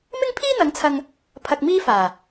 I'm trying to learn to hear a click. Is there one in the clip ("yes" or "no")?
no